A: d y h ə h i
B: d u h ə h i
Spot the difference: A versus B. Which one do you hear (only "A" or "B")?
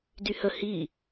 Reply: A